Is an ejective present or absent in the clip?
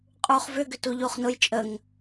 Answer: present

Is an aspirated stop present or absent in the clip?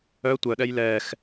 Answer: absent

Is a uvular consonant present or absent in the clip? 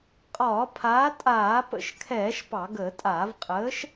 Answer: present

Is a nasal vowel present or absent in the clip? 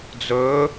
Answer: absent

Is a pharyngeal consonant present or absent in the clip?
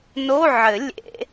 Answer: present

